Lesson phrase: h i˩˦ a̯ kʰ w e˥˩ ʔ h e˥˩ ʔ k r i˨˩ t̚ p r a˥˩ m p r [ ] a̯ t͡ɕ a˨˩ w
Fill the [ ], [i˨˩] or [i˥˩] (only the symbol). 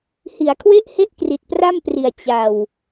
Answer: i˨˩